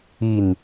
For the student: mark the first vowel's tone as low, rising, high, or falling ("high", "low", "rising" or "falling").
falling